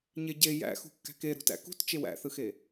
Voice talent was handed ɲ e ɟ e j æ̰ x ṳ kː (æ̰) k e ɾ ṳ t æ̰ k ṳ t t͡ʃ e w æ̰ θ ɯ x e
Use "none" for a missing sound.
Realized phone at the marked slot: æ̤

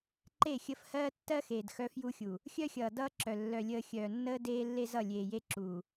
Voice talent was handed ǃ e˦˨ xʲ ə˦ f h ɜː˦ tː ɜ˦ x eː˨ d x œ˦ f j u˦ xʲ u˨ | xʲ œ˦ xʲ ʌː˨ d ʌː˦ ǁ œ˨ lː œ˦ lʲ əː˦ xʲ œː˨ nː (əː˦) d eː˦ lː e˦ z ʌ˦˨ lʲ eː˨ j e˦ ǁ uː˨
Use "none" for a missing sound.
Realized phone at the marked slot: əː˦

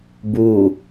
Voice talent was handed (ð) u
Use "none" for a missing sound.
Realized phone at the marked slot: b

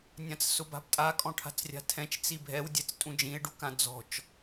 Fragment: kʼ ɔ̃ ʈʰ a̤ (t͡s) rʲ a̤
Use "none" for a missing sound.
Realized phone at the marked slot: t͡s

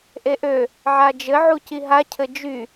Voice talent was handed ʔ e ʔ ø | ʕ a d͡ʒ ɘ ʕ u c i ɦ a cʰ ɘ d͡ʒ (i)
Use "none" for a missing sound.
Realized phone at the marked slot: y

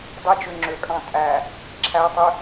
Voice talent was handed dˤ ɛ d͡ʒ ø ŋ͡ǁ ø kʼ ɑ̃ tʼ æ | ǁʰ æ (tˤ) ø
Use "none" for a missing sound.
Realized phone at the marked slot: tˤ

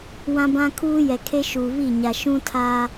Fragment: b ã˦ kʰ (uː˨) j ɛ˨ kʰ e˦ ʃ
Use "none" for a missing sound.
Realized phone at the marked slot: uː˦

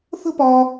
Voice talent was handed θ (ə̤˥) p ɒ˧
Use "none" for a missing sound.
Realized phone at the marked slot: ə̤˥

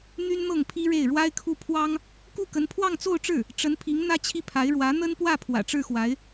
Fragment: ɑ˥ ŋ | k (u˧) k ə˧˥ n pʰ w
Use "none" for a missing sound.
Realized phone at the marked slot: u˥˩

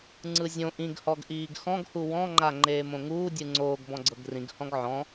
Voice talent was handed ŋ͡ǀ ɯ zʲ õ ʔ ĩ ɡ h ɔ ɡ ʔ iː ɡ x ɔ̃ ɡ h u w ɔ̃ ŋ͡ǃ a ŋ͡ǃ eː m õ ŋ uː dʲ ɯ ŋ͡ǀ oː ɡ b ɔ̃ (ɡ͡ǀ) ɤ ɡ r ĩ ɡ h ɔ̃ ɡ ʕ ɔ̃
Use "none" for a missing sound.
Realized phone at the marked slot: ɡ͡ǀ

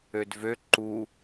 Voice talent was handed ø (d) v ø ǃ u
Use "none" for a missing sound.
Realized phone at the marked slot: d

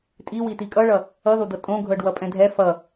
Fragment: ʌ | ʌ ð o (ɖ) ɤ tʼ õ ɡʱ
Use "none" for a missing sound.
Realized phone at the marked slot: d̪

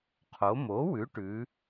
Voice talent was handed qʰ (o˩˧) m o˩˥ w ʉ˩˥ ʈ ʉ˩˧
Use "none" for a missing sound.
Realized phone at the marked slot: o˩˧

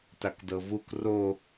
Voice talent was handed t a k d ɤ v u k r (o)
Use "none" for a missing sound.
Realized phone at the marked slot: o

